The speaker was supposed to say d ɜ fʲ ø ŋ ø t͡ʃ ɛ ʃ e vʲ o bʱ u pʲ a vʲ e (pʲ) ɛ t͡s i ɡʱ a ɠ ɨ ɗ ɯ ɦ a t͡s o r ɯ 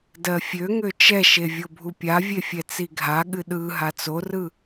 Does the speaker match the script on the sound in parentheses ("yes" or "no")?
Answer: no